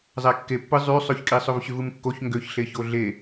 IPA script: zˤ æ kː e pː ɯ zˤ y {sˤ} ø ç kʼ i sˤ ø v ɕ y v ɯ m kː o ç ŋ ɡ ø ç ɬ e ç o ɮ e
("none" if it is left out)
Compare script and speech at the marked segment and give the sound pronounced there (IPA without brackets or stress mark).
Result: sˤ